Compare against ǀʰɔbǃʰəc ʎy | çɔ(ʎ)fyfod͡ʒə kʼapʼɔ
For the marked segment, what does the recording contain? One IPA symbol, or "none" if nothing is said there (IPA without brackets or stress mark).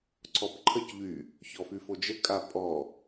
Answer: none